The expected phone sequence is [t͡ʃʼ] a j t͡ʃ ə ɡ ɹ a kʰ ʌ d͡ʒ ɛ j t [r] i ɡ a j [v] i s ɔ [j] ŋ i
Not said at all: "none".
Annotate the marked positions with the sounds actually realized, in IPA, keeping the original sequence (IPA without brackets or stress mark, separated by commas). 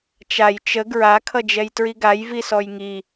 t͡ʃ, ɹ, v, j